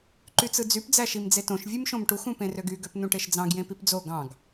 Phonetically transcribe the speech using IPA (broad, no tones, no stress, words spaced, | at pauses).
ǃyt͡sɯd͡zyp d͡zæʃimd͡zetõʃ vʲɯmʃõmʈux ũpẽrøɡy ɡøpnũʈeʃd͡zɑ̃ɡ jẽpipd͡zo ɡɑ̃ɡ